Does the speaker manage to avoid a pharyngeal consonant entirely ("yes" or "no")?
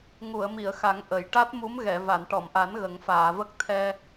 yes